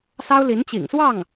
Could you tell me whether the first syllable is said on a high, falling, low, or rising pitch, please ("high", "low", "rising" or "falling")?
high